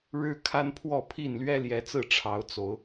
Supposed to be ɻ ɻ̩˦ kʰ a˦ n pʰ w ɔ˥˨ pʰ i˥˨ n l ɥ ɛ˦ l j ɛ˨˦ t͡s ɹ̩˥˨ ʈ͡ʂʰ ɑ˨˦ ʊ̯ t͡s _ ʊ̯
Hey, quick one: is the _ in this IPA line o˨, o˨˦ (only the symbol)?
o˨˦